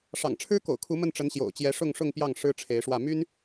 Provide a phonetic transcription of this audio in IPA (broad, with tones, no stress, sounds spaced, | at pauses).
ʂ ɑ̰˨˩ ŋ ʈ͡ʂʰ ɻ̩˥ k o̰˨˩ ʊ̯ kʰ u˧˥ m ə˥˩ n ʈ͡ʂ ə˧˥ n ɕ j o̰˨˩ ʊ̯ t͡ɕ j ɛ˧˥ ʂ ʊ˥˧ ŋ ʂ ʊ˥˧ ŋ p j ɑ˥˩ ŋ ʂ ɻ̩˥ ʈ͡ʂʰ e˧˥ ɪ̯ ʂ w ä˥˩ m y˥ n